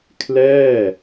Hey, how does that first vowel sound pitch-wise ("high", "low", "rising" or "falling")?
falling